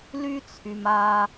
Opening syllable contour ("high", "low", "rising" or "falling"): high